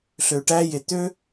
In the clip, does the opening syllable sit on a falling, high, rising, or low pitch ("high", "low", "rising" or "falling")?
low